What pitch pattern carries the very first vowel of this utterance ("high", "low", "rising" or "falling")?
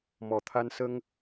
low